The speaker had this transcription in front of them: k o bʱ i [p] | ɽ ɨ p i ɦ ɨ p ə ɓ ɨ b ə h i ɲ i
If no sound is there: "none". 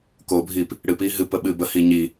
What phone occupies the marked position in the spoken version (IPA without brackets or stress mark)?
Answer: p